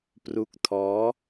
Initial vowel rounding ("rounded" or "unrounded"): rounded